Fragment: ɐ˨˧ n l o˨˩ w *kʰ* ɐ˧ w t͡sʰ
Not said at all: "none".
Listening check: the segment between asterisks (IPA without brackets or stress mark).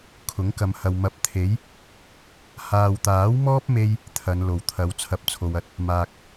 t̪ʰ